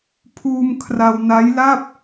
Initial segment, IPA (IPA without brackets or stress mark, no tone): pʰ